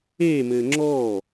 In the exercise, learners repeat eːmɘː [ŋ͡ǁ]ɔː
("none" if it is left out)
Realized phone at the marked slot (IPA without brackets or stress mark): ŋ͡ǁ